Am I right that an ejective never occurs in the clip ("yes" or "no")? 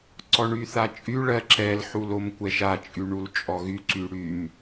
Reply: no